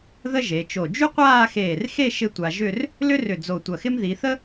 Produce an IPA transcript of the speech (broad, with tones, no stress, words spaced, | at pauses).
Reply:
ðə˥ʒe˩˧t͡ʃo˧˩ d͡ʒy˥qʷaː˥˧xeː˧˩rxe˥˧ ʃɪ˥tʷa˧ ʒʏ˥˧r | lʏ˥rʏ˧˩ d͡zo˧˩tʷɐ˧˩xɪ˥m ði˩˧θə˥